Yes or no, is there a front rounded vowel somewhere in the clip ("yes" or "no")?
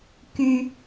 yes